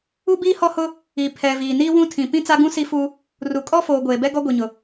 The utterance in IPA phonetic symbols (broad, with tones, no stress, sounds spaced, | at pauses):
u˦ b iː˦ h ɔ˦ h ʊ˦ | i˨ pʰ ɛ˨ v iː˨ n iː˦ w ũ˦ tʰ ĩ˨ p ĩ˦ t͡s a˦ ɡ ũ˦ s i˦ f u˦ | r u˨ kʼ ɔ˦ f oː˨ ɡʷ eː˨ b ɛ˦ ɡ ɔ˦ ɡʷ i˨ ɲ ʊ˨